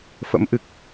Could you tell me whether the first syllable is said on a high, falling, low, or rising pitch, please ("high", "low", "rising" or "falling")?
rising